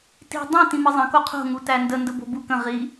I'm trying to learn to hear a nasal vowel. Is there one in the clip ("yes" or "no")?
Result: yes